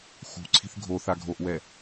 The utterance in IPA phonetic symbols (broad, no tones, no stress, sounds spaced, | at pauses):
x ṳ ǀʰ i̤ θ ɡʱ o θ a ɡʱ o ʔ w ɛ